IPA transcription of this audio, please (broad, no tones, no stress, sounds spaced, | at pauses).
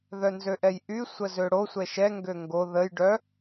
ð œ n z ø ʔ ɛ j ʔ y sʷ ə z ø ɽ o sʷ ɛ ʃ ɛ ŋ ɡ ø ŋ ɡ o ð ə j ɖ œ